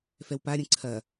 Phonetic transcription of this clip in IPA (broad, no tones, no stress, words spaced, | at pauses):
fɛwpaɾʲə̃ ǀʰɐ